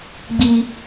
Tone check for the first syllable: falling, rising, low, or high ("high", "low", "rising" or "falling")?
high